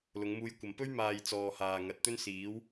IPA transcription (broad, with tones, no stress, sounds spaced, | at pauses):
l ʊ˨˧ ŋ m uː˧ j kʷ ɐ˨ m p ɵ˥ ɥ m aː˨ j t͡s ɔː˨ h aː˨ ŋ ɐ˨ t̚ t̪ ɵ˥ n s iː˨˥ w